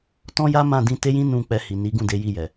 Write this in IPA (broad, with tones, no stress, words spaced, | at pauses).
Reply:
tɔ̃˦ja˦mã˦˨ dĩ˧te˦jĩ˦ nũ˦˨ k͡pɛ˧hi˨ni˨˦ɡũ˦˨ de˨˦ji˦˨jɛ˨